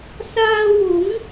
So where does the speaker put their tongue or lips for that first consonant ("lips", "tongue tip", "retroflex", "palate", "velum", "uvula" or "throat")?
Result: tongue tip